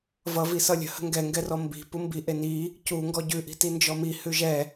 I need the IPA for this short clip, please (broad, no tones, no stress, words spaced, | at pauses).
vʌvi sʌlʲə̤hə̤ ŋɡɛŋɡɛrɔ mbi̤ pumbiʔe ni | cu ŋɡɔɟʉʔi̤ tind͡ʒɔmi hʉʒɛ